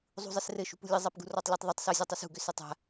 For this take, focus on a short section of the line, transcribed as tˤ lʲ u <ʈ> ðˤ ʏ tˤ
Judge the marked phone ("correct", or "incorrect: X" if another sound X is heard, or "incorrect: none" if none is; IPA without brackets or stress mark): incorrect: tˤ